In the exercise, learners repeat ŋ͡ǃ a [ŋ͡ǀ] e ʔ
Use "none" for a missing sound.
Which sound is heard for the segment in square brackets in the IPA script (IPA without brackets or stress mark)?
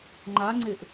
ŋ͡ǀ